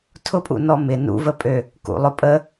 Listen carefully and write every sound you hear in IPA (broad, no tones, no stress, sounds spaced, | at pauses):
tʰ ʊ pʼ ṵ n ɔ m ɪ n ṵ v ə pʼ ø | k ṵ lˠ ʊ pʼ ə